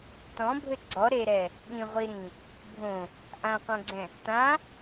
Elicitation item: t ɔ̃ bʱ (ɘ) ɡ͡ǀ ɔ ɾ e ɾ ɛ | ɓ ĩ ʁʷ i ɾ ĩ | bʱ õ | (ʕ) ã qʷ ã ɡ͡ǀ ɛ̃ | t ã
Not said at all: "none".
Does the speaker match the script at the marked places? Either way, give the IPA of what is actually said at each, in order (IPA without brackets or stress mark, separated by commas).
ɘ, ʔ